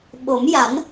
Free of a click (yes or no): yes